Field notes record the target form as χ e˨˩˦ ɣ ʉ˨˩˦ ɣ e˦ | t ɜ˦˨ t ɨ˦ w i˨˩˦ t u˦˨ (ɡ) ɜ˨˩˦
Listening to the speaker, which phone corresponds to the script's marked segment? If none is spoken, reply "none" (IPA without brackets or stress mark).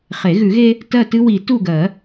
ɡ